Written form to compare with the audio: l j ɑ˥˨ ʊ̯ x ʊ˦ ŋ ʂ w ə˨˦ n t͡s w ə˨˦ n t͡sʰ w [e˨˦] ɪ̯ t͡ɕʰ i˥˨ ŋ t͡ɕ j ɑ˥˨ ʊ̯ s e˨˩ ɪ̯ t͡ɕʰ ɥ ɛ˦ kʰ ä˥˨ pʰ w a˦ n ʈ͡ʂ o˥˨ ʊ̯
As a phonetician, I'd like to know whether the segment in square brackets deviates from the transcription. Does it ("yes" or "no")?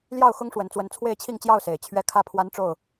yes